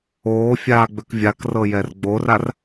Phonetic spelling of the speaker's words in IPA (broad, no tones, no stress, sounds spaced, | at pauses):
oː fʲ aː ɡ͡b ø k vʲ a k r ɤ j ɛ r ɡ͡b o r a r